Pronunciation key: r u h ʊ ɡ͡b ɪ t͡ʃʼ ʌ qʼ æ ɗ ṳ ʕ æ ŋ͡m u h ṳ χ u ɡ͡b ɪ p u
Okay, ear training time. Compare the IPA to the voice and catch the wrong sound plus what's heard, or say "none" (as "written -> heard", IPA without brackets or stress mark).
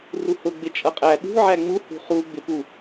none